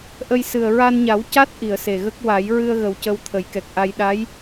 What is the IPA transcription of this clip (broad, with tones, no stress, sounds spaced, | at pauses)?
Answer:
ʔ ə˧ j s ɨ˨˩ ə̯ ɹ a˧ n ɲ a˨˩˦ w c a˦˥ t̚ ʔ i˨˩˨ ə̯ s e˨˩ ɣ ə˦˥ k̚ w a˨˩˦ j ɹ ɨ˧ ə̯ ɣ ə˨˩ w c ə˧ w t̪ʰ ə˨˩˦ j k ɛ˨˩ k̚ ʔ a˧ j ɗ a˧˥ j